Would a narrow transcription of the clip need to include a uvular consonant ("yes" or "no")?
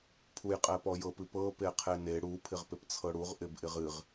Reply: yes